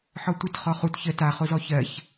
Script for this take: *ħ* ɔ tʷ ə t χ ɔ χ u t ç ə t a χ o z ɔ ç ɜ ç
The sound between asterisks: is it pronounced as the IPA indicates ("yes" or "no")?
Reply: yes